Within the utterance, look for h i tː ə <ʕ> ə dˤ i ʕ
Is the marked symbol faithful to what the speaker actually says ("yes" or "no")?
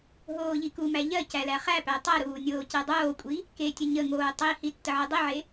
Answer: yes